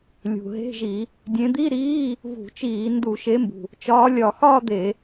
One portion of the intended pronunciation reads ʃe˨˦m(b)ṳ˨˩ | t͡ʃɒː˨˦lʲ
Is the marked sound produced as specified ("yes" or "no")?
yes